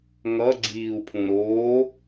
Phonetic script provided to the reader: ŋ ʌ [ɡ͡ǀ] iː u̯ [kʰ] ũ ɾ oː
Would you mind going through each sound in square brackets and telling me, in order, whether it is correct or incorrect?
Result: correct, incorrect

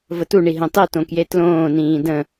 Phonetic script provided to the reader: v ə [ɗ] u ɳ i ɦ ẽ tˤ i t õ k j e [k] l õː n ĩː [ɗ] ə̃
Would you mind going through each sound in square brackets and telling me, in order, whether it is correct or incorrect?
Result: incorrect, incorrect, incorrect

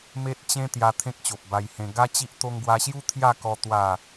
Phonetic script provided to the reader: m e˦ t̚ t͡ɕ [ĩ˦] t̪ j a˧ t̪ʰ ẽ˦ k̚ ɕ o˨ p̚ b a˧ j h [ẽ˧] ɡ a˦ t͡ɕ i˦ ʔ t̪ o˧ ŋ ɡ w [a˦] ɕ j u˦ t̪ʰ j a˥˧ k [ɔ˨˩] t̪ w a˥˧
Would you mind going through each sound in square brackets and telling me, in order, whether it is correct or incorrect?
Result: incorrect, correct, incorrect, incorrect

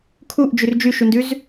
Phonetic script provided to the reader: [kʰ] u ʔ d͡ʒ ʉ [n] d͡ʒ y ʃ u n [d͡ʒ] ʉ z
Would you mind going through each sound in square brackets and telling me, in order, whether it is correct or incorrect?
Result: correct, incorrect, incorrect

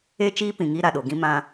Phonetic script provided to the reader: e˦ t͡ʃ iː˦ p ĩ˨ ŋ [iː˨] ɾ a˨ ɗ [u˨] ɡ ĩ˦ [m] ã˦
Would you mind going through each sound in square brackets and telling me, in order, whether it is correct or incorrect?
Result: incorrect, incorrect, correct

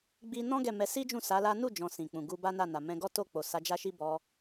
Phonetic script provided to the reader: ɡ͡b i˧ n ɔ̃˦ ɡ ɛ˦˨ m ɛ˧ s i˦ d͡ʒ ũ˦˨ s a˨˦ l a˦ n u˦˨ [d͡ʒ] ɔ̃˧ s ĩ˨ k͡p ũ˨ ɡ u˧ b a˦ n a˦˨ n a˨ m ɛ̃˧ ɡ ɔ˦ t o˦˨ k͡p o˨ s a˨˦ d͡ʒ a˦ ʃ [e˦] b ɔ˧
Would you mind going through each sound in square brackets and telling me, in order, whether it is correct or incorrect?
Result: correct, incorrect

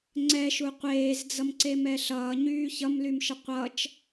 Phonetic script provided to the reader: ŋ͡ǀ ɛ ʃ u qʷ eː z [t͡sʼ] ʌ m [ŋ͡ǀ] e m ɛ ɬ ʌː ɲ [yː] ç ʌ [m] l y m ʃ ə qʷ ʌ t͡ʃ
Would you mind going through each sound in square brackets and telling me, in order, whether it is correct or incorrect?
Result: incorrect, incorrect, correct, correct

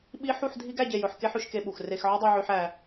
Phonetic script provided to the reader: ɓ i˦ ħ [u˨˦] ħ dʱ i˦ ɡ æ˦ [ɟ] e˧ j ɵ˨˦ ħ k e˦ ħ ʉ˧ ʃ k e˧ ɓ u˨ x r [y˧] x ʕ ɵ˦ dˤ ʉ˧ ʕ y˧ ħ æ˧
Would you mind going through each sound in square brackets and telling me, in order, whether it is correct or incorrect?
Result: incorrect, correct, incorrect

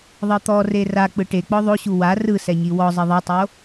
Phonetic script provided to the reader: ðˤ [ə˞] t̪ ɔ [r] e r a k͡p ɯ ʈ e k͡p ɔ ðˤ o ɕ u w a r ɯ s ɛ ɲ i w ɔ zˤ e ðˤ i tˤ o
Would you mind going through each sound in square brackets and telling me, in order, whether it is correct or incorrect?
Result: incorrect, correct

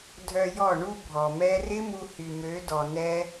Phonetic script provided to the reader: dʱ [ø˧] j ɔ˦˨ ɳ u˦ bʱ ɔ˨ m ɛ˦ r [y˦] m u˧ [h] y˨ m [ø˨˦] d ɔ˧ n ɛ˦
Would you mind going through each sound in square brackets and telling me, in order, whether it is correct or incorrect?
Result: incorrect, incorrect, correct, correct

